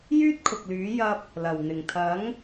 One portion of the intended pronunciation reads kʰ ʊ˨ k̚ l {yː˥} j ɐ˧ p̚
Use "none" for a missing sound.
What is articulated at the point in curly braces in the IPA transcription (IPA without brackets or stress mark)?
yː˨˥